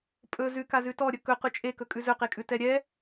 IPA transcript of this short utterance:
pʼ ɵ z ʉ k a z ʉ t ɔ ɾʲ ɵ k ɵ q ʉ t͡ʃʼ e k ɵ kʼ ʉ z ɵ q e kʼ ʉ t ɛ ɾʲ ɛ

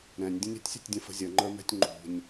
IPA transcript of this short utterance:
ɾ ɛ̃ nʲ dʲ ə̃ nʲ ə̤ tʲ sʲ ə̤ tʲ dʲ ə̃ f ə̤ zʲ ə ŋ͡ǃ ə˞ m ɛ̤ tʲ ŋ͡ǃ ṳ nʲ

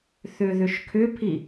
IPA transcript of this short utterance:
θ ʏ ð ʏ ʃ kʰ ʏ pʰ i

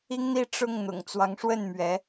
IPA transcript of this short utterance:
i˥ ŋ n̪ i˥ ʈ͡ʂ ʊ˥˩ ŋ n̪ ʊ̰˨˩ ŋ t͡s w ɑ˧˥ ŋ ʂ w ə˥˩ n m ɥ ɛ˧˥

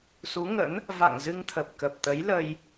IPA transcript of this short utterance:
s u˨˦ ŋ ə̰˧˥ n | v a̰˧˨ ŋ z ɨ˧ ŋ t̪ʰ ə˨˩ p̚ k ə˨˩ p̚ t̪ ə˨˦ j l ə˧ j

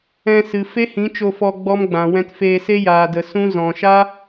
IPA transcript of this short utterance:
ɛ̃˧ s ɨ˨ f e˦ h ĩ˨˦ t͡ʃ o˧ f ɔ˧ ɡ͡b ɔ˦ m ɡ͡b ã˨ w ɛ̃˦ t f eː˧ s e˦ j aː˧ d ə˧ s ũ˦ z ɔ̃˨ ʃ a˦

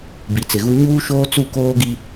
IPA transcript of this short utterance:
b i˨ t͡s ɪ˨ ɣ u˦ ɲ uː˦ ʃ oː˦ t͡s u˦˨ k oː˦ ɡ i˦

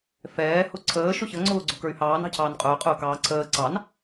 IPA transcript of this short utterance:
f ɛː h ʊ ǀʰ əː ʃ ʊ ç ə ŋ͡ǀ ʊː ɡ͡ǀ ʊ k ə˞ y̯ h ɑː n ɑ̤ cʰ ɑː n qʼ ʊː qʼ ʊː k ɑː ǀʰ əː ǀ ɑ n

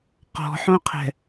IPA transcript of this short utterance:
q ɔ̤ ħ õ qʰ ɛ̤

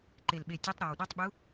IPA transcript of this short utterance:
ǃ e˨˩ l ɓ e˨˩ tʲ ɛ˨˥ tˤ ɾ a˨˩ w ɗ a˨˥ tˤ ɓ u˨˥

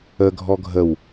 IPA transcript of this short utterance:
ə ɡʱ ɔ ɡʱ ə w

